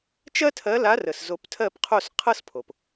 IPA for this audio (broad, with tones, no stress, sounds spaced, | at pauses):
t͡ʃ ɜ˦ tʰ ɜ˨˦ l a˨˦ r ə˩ s z o˨˩˦ p tʰ ɜ˥˨ p qʰ o˥˨ s qʰ ɤ˦ s pʰ o˩ p